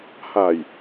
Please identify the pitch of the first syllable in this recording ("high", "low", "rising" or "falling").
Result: low